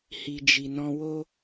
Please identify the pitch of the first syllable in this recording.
low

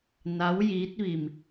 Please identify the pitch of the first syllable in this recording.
rising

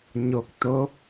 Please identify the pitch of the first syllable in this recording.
rising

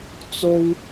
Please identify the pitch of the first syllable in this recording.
high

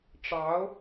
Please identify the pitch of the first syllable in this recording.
rising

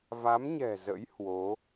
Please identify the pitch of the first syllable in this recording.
rising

